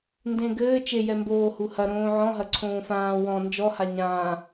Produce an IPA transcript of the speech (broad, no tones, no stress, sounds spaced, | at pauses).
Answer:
n d ẽ ɡ ɘː t͡ʃ e j ɛ m b oː h u h ɐ ɾ õː ʕ ɔ̃ ɦ ɐ ǀʰ õː f ãː w ɔ̃ n d͡ʒ ɔ h a ɲ ãː